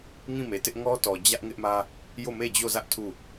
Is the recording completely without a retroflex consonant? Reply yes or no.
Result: yes